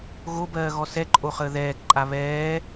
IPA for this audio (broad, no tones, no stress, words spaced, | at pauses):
ɣobɜːɣɔ sɛǃʼoχəː ðɛːkǃʼa βɛː